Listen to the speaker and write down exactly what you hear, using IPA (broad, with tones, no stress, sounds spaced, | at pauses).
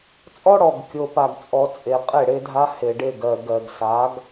t͡sʼ ɔ˦ ɽ ɔ˨ ɡ kʲ o˨ p a˨ ɡ t͡sʼ ɔ˨ t͡sʼ e˨ qʼ e˦˨ ɽ e˦ dʱ a˦ h e˨ ɖ e˦˨ ɡ ɜ˨ ɡ ɜ˨ ɡ s a˨˦ ɡ